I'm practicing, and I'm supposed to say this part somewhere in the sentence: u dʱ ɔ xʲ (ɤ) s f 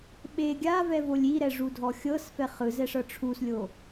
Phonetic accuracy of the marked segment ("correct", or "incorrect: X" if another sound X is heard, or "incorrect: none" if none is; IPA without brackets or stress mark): correct